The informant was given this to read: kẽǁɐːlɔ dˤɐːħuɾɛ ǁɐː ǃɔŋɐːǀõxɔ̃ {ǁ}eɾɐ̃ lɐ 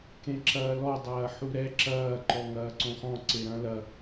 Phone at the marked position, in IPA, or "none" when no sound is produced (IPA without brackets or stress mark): ǀ